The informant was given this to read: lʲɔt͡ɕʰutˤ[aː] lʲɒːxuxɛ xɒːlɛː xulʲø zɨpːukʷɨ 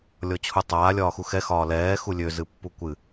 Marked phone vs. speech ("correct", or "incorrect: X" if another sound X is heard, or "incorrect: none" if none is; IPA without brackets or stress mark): correct